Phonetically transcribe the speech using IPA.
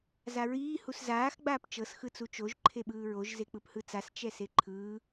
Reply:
zaɹiː huszaːx ɡ͡baːpt͡ʃɤs xɯt͡sut͡ʃoʒ ǃʰeɓɯːɹoʒ zek͡pɯphɯt͡sas t͡ʃɛseǃʰɯː

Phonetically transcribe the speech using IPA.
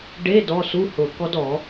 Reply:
ɖe˧˥˧ dɔ˧˥˧su˧˥˧hʊ˨˩˦ kɔ˦˥dɔ˨˩˦

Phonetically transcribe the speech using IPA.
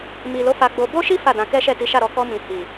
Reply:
mi˨lo˨˦ fa˧ɡ͡bo˧ bo˦ʃi˦ fa˦˨dã˧ kɛ˦ʃɛ˦˨ ti˨˦ʃa˦˨ɾɔ˨˦ kɔ˧mĩ˨ hi˨

